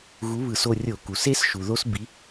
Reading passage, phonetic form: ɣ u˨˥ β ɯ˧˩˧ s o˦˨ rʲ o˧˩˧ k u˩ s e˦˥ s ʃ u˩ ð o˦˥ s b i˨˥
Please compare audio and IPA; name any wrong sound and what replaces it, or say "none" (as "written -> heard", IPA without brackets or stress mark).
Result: none